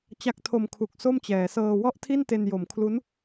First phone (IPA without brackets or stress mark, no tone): t͡ɕ